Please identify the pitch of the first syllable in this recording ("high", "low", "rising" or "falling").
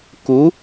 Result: rising